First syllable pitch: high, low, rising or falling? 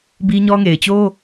high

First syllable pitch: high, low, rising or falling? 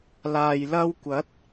low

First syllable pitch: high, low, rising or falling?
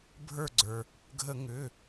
falling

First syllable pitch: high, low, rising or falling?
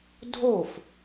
falling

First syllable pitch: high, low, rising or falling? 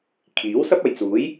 rising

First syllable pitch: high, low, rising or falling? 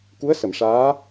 rising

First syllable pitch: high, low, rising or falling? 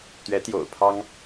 rising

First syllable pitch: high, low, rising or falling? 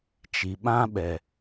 low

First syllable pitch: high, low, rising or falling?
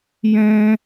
high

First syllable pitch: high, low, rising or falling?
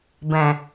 low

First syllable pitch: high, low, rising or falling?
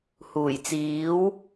low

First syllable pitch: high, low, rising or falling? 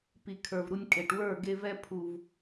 low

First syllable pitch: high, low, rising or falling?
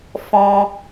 high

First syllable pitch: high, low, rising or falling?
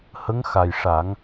rising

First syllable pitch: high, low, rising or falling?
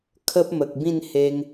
high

